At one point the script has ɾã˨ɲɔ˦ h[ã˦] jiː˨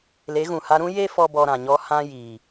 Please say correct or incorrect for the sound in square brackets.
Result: correct